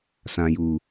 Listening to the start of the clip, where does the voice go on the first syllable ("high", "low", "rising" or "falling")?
low